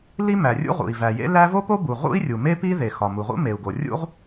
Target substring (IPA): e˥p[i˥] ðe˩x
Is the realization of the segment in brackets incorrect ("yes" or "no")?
no